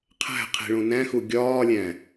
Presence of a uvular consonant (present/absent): present